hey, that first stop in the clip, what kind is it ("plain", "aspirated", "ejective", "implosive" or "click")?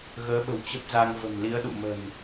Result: implosive